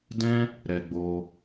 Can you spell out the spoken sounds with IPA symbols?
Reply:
d ɛ̃˦ | ɾ ɛ˧ ɡ͡b o˧

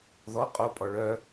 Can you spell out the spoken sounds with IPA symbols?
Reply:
ð ɔ qʼ o pʼ ɔ ɭ œ

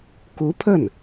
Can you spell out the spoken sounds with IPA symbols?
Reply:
k u˧˥ pʰ ə˥˩ n

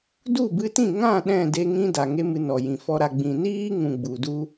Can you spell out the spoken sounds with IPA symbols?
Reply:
d u˦˨ b ɨ˧ t ĩ˦˨ ŋ ã˦˨ ɗ ɛ̃˦˨ d e˧ ŋ ĩ˦ d a˨ ŋ e˦ m ɨ˧ n ɔ˨ j ĩ˨ f ɔ˧ ɾ a˨ ɡ͡b ĩ˨ n iː˦ ŋ ũ˨ ɡ͡b u˨ d u˦

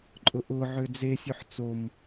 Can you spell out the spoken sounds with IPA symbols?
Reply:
ǃʼ ʊ ʔ ʊ ʕ ø d͡z e sʲ ø ħ t͡s o m

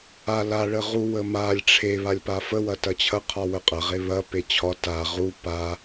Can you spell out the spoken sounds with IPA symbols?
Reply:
a l a ɭ ə ʁ u w ə m a lʲ ʈ͡ʂʰ e β a lʲ p a f ə w ɐ t ɐ t͡ɕʰ ɐ qʰ ɒ w ə qʼ ɐ ʁ e β ɐ p e t͡ɕʰ ɒ t a ʁ u p a

